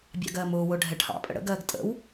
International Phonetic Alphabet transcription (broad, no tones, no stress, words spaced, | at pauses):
bʲɑ̰ɡɜːmʊːwʊː ɖʱɛʈʰɑ̰pʼə̰ ɽə̰ɡɜːɡ tʼə̰w